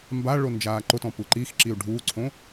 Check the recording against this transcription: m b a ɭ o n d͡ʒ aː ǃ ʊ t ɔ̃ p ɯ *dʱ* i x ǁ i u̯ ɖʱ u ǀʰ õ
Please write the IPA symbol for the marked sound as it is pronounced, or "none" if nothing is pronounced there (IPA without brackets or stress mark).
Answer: ǃ